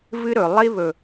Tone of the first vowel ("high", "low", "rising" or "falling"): high